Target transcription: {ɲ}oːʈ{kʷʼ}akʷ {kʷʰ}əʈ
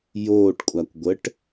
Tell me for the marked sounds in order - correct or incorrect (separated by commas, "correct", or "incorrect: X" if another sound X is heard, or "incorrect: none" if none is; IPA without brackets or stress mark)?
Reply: incorrect: j, correct, incorrect: ɡʷ